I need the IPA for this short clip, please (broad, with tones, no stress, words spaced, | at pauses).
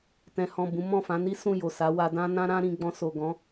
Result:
tɛ̃˨hɔ̃˨ bũ˨˦mɔ̃˦˨ fã˨˦ni˦sũ˦˨ jo˨sa˨˦ wa˧dã˦nã˦ ɾã˦ɾĩ˧ɡ͡bɔ̃˧ so˨ ɡɔ̃˨˦